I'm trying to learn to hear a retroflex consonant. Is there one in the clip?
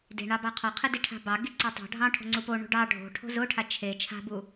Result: yes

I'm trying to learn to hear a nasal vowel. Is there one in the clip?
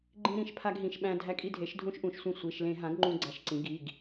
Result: yes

